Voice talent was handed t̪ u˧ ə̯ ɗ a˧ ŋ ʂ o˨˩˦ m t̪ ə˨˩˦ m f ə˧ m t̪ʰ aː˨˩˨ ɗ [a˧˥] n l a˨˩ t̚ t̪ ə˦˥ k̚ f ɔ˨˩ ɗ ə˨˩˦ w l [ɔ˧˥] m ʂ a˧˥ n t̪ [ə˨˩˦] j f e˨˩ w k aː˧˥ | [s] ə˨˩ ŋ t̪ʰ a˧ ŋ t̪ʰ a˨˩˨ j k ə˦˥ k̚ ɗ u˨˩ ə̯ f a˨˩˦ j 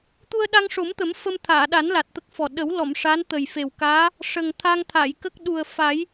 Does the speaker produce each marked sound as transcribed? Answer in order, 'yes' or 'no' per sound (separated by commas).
no, no, no, no